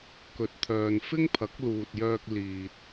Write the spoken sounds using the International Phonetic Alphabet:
k ɵ˨ t̚ t̪ʰ œː˨ n f ɪ˥ ŋ pʰ ɐ˨˥ k̚ l uː˨ t̚ j œː˧ k̚ l iː˨ t̚

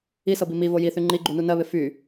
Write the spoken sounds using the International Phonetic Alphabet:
i s ɤ b i m i v o j i θ y ŋ͡ǃ i ɡ͡ǃ u n u n ɜ β ɪ f y

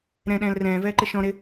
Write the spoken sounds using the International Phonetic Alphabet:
ɾ ɛ̃ ɗ ɛ̃ː l r ɛ̃ː v ɛː ǃ ɪ ʃ ɔ̃ ɾ ɪ

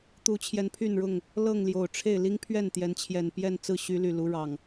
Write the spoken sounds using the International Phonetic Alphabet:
t̪ u˨˦ t͡ɕʰ j ɛ˨˦ n pʰ y˥˨ n ɻ ʊ˥˨ ŋ | l ɤ˥˨ ŋ l j o˨˩ ʊ̯ ʈ͡ʂʰ e˥˨ ɪ̯ l i˦ ŋ pʰ ɥ ɛ˥˨ n t̪ j ɛ˨˦ n t͡ɕʰ j ɛ˨˩ n p j ɛ˥˨ n t͡s ɹ̩˥˨ ɕ y˨˦ l y˨˩ l u˨˦ ɻ ɑ˨˩ ŋ

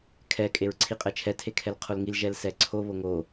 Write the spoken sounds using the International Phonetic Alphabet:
kʰ ɛ kʼ e ɹ ǀʰ i qʼ ɛ t͡ʃʰ ɛ tʰ e kʰ ɛ l qʰ o l ŋ i l ʒ ɛ l s ɛ ǀʰ o β o ŋ o

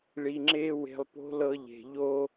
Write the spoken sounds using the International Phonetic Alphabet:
ɭ i˨ ŋ͡ǁ e˧ w e̤˨ lˠ p o̤˧ l ɤ˧ ʎ e̤˨ ʎ o˦

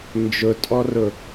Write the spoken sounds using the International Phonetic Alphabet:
n d͡ʒ ʊ tʼ ɔ r ʊ

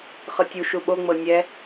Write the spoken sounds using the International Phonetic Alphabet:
χ ɤ tʲ u ʃ u ɓ o ŋ͡m ɤ nʲ ɛ

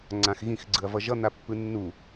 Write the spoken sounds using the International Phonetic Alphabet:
ŋ͡ǀ ã x ɣ ĩ x ɡ͡ǀ ɯ ɐ̯ v ʌ ʒ ʌ n̪ a pː ɯ nː u

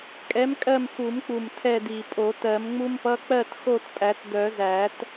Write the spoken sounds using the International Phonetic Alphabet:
kʼ ɛ˨˥ m kʼ ɜ˦˨ m x u˨˩˦ m k͡p u˨˩ m tʰ ɛ˦˨ d i˨˩ pʼ o˨˩˦ t ɜ˨˩˦ m ŋ͡m u˥ m p ʌ˧˥˧ k͡p ɜ˦˨ t x o˦˨ t pʼ æ˨˩˦ t d œ˨˩˦ z æ˨˩˦ t

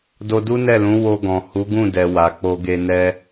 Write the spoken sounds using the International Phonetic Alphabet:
d o˧ d u˦ n ɛ˦˨ l ũ˨˦ w o˧ ɡ ɔ̃˨ h u˨˦ ɡ ũ˦˨ d ɛ˨ w a˨ k͡p o˧ ɡ e˧ n ɛ˧

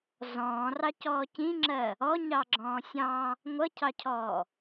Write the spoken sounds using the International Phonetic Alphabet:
z ɔ̃ː r ɑ c ɔː c ĩ ŋ͡ǁ ɜ | ɔ ɲ ɑ ɡ͡ǁ ɔ̃ː sʲ ɑ̃ | ŋʷ ʌ cʰ ɑ cʰ ɔː

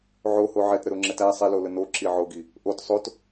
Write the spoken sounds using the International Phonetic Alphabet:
ʕ o h o ʕ ɛ t ɾ ə ɾ o ŋ͡ǁ ɛ t æ sˤ ɛ l o l ə n o ǁ i ʕ o ɡ i | ʔ o t sˤ o t

